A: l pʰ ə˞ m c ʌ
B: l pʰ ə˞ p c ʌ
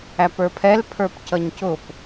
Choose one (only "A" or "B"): B